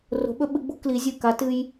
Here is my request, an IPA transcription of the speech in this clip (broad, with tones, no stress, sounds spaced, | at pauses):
r o̤˧˥ ɓ ɵ˥ ɓ ɨ˧˥ ɡ͡b ṳ˥ k l i˧˥ zʲ ɨ˥˨ k a˧˥ t ɨ˥ j